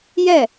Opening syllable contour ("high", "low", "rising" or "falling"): falling